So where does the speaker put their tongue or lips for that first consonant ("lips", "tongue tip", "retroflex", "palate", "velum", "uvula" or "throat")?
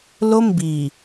tongue tip